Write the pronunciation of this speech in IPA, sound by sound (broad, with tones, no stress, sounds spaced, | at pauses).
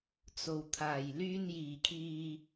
t͡s o˨˩ w t̪ʰ aː˨˩ j l yː˧ n j iː˨˩ kʰ iː˨